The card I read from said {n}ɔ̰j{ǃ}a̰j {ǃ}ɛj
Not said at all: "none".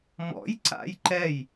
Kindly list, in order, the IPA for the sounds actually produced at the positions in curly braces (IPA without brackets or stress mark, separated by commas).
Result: m, ǀ, ǃ